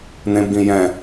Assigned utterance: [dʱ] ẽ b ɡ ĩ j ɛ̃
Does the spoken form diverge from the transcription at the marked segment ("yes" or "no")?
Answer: yes